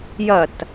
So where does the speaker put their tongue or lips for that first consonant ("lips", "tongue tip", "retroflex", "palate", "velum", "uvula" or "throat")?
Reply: palate